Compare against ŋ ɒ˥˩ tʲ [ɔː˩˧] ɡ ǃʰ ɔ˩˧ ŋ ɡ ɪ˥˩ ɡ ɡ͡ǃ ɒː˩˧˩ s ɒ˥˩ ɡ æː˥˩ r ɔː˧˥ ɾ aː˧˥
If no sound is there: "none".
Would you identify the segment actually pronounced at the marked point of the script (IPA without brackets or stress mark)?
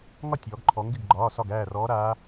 ɔː˩˧